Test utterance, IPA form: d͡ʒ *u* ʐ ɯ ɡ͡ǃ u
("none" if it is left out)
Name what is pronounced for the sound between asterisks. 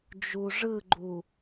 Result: u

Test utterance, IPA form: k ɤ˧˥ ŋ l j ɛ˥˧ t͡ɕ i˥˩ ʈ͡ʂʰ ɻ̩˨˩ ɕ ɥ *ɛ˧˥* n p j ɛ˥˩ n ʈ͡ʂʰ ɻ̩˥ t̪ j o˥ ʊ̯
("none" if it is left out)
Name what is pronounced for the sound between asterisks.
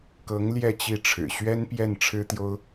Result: ɛ˥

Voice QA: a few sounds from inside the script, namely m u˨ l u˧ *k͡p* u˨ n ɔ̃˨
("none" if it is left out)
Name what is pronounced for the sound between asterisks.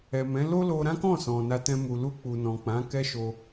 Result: k͡p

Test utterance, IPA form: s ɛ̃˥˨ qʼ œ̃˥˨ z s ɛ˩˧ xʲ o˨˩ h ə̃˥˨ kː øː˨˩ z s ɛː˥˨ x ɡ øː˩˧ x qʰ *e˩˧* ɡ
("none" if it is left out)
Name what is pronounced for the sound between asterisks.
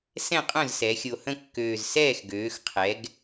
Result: ɛ˩˧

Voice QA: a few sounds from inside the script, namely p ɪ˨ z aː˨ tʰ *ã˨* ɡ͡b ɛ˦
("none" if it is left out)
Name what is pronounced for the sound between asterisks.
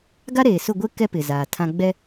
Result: ã˦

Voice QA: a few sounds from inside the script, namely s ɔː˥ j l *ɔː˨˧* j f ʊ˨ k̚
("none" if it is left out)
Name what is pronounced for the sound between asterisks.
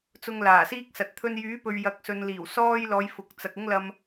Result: ɔː˨˧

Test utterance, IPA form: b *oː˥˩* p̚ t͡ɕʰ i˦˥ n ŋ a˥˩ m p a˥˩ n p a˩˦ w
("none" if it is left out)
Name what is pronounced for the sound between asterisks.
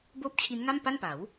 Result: oː˥˩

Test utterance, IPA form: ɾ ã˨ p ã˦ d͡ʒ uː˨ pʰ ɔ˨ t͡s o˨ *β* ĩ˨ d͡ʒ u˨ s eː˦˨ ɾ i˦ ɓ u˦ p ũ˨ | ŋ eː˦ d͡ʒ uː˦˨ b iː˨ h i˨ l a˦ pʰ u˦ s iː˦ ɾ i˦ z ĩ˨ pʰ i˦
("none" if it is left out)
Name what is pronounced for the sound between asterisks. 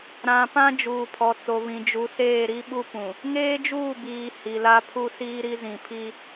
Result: β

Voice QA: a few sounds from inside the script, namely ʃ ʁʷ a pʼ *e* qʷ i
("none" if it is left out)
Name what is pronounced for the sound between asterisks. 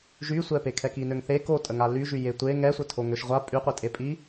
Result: y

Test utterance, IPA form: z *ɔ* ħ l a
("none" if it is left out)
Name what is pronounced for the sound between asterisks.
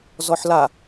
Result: ɔ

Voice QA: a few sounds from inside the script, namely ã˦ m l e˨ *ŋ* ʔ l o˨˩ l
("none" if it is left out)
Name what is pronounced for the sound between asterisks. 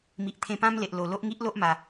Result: none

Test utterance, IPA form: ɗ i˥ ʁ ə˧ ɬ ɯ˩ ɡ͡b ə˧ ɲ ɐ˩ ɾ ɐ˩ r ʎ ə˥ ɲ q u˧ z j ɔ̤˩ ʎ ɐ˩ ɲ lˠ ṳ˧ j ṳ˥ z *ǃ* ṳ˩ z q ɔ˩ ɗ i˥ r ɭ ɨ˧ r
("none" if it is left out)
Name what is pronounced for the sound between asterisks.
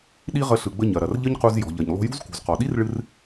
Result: k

